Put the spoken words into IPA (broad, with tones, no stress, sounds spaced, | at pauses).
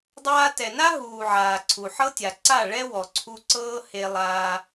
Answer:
dˤ aː˧ t ɛ˨ n a˦ ɦ uː˨ ʕ aː˨ ǀʰ u˨ ħ ɤ˦ tʲ a˨ ǀ a˦˨ ɭ ɛ˦ w ɔ˨ ǀʰ u˧ ǀ ɤː˦ h e˧ lˠ aː˧